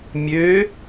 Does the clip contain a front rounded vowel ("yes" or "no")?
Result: yes